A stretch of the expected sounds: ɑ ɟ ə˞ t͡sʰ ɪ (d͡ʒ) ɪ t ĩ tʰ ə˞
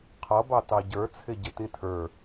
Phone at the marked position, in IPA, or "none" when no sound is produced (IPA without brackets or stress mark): ɟ